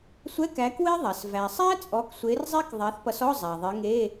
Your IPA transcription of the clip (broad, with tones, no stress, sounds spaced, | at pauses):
sʷ ɛ˧˥˧ k æ˨˦ k w e˦˥ ðˤ æ˩ s v æ˩ sˤ æ˦˥ t͡sʼ ɔ˨˦ k sʷ e˨˦ r zˤ e˦˥ k ðˤ æ˨˦ θ p ʌ˨˦ s ɔ˧˥˧ zˤ æ˩ ðˤ e˨˦ ŋ e˧˥˧